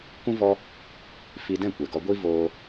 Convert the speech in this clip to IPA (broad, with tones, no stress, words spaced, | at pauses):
kũ˦ vɔ˧ | fi˧dɛ̃˦˨kʷɛ˨ ɡɔ˧ɡʷi˦voː˧